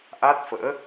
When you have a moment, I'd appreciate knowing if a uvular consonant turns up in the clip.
no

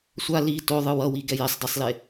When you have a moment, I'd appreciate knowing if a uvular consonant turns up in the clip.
no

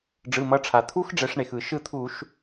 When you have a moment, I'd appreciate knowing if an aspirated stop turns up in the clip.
yes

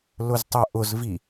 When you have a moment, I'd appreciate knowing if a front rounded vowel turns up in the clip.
yes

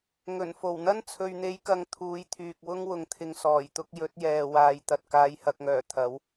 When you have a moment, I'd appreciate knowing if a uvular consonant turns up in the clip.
no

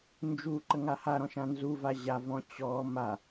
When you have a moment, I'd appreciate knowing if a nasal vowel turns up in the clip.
yes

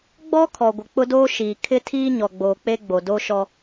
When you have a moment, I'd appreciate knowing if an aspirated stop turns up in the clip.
yes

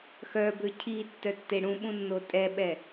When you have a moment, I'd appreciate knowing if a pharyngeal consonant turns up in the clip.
no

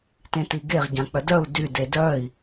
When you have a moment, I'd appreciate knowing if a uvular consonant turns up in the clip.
yes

